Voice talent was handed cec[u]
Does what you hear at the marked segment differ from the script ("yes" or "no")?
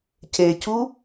no